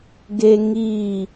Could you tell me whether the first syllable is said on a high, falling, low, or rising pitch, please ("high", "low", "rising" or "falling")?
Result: high